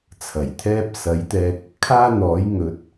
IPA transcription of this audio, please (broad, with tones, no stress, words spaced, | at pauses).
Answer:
t͡sʰɐ˨˩jt̪ʰɛː˥p̚ sɐ˨˥jt̪ɛː˧k̚ | kʰaː˥n̪ɔː˨˥j ŋɵ˨˥t̚